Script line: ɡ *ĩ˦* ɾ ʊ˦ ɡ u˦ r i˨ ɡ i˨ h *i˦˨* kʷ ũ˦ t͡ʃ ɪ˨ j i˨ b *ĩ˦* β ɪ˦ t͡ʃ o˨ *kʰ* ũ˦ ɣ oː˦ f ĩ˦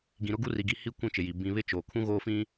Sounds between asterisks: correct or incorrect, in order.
incorrect, correct, correct, correct

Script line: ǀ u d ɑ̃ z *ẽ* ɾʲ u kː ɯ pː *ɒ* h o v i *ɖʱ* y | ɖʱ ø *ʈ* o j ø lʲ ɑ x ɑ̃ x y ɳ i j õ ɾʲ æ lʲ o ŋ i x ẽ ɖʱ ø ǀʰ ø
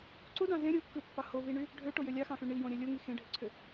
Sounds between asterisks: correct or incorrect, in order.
correct, incorrect, incorrect, correct

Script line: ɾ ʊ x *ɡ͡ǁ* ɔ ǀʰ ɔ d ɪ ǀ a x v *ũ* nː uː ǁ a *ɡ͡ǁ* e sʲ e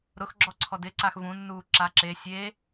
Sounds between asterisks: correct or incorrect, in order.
correct, correct, incorrect

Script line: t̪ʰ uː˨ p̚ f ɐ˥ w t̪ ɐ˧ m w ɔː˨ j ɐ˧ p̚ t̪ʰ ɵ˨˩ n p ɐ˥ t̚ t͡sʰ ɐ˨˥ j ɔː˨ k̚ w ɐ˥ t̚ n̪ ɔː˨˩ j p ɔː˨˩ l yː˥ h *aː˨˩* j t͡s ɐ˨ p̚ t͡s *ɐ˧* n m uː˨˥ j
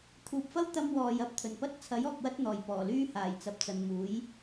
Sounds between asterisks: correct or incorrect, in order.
correct, incorrect

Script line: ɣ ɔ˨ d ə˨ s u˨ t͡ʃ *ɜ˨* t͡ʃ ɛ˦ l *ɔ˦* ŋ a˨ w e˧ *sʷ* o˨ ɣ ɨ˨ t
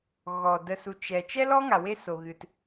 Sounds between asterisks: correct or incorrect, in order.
incorrect, correct, incorrect

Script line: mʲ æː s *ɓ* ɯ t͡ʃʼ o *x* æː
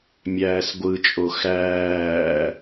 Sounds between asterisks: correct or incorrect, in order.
incorrect, correct

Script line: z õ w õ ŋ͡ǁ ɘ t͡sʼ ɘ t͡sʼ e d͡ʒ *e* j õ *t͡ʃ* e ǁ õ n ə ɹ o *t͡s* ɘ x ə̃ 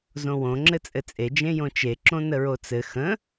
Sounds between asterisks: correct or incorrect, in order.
incorrect, correct, correct

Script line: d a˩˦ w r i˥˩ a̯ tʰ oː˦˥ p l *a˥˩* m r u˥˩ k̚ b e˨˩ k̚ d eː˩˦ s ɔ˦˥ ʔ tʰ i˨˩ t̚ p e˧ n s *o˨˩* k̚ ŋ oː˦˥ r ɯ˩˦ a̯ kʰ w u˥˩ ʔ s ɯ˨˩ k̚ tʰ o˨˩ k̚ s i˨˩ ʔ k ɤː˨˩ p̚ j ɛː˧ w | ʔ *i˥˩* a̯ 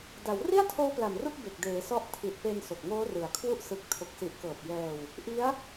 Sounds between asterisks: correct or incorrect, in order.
incorrect, correct, incorrect

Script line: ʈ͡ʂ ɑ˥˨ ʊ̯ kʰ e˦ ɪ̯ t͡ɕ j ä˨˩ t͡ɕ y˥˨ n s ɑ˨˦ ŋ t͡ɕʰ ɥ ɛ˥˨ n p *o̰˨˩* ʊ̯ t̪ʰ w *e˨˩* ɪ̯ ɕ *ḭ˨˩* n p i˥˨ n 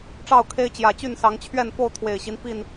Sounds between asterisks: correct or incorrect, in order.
incorrect, correct, incorrect

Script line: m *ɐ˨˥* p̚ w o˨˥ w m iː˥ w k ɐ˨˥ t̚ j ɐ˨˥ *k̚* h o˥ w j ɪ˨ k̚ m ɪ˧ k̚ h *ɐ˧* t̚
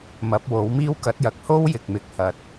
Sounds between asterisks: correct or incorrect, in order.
correct, correct, correct

